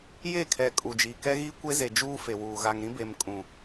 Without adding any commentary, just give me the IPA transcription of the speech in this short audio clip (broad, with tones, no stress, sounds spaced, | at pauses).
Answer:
j e˦˨ kʰ ɛ˨ kʼ u˨ d͡ʒ iː˨ k ɛ˦ ɣ iː˦ kʷ e˦ z e˨ d͡ʒ uː˦ f e˨ w uː˨ ɣ a˨ ŋ ɾ ĩ˦ b e˨ m kʼ ũ˨